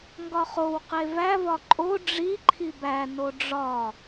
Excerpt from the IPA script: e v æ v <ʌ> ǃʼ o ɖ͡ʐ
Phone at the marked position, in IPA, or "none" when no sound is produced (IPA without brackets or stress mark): ɒ